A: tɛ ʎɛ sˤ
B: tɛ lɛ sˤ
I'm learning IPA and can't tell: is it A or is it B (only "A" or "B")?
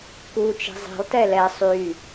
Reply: B